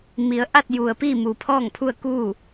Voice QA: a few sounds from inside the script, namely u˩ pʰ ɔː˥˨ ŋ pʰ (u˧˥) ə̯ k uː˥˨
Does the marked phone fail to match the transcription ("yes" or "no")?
yes